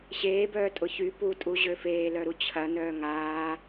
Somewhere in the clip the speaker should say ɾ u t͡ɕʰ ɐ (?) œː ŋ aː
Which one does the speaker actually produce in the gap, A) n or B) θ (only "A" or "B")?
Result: A